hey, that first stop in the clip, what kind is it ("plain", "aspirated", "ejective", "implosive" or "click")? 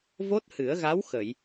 plain